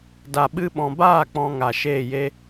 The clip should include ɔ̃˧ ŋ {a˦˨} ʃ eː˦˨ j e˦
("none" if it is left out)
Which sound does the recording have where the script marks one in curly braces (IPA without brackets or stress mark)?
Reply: a˨